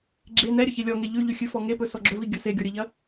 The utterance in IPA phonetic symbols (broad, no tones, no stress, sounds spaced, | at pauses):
ɡ͡ǁ e n ɛ ɾʲ ɵ ç e lʲ ɔ ŋ e ʎ ʉ ʎ ʉ xʲ ʉ f ɔ ŋ e p ɵ s ɔ ɡ͡ǁ ɵ v i ɡʲ ɐ s e ɡʲ ɔ ɾʲ ə ʎ ɐ